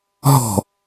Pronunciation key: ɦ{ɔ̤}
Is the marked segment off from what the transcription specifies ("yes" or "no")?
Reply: no